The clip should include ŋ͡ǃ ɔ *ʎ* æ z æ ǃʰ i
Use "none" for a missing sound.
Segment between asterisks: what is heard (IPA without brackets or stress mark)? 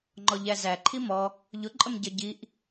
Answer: ʎ